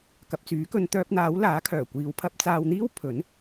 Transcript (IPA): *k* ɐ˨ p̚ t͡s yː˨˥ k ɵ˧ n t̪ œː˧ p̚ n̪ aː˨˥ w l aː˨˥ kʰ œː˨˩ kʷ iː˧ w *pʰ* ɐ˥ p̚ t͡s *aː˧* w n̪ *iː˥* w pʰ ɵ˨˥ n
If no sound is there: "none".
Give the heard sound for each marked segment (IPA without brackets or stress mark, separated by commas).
k, pʰ, aː˧, iː˥